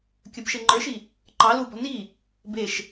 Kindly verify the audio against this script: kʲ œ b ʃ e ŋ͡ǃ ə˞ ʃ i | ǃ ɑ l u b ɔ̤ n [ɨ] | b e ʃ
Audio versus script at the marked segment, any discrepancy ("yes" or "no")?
yes